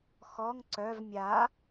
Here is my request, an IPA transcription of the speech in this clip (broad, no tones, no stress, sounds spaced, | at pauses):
x ɔ ŋ ǀ œ v mʲ a